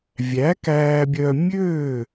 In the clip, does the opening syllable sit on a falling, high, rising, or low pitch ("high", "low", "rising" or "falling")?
rising